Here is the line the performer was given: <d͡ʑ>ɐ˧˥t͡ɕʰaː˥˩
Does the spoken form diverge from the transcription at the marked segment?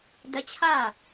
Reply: yes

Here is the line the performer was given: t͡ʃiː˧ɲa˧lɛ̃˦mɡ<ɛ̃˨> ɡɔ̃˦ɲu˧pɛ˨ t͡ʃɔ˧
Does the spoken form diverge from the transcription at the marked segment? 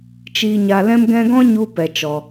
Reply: yes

